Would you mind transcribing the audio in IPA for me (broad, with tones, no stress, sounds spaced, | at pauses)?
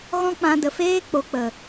ɣ ɔ̃˦ k͡p ã˧ d ə˨ f eː˦ k͡p o˨ k͡p ə˨